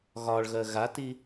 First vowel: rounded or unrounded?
rounded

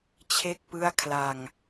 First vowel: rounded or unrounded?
unrounded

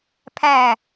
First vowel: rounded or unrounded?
unrounded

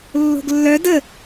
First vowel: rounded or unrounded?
rounded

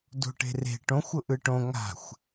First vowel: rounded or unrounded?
rounded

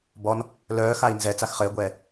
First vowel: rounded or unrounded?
rounded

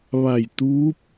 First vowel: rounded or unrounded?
unrounded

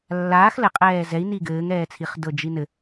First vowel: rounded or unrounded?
unrounded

